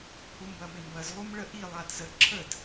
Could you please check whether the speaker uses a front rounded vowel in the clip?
no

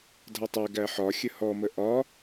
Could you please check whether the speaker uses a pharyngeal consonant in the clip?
yes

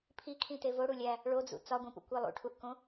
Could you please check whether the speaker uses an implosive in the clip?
no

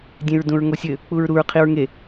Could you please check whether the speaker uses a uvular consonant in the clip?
yes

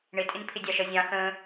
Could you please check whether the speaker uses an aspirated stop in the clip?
yes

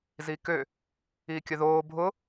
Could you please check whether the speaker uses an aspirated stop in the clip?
no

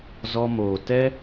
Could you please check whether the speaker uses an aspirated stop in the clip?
no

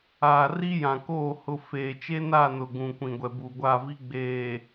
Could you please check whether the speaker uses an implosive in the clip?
no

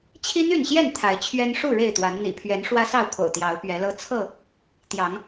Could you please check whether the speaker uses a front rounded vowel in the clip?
yes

